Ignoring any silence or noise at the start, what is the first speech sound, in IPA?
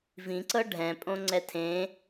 v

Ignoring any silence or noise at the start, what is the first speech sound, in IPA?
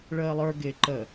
ɭ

